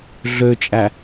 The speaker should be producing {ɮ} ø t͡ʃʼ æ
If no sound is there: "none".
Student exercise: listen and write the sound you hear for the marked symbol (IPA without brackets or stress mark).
ɮ